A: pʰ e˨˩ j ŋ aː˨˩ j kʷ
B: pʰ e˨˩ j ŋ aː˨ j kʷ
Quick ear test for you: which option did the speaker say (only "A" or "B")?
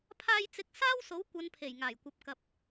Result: A